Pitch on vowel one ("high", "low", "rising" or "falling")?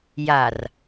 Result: low